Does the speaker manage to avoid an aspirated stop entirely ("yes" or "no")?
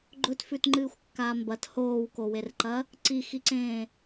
yes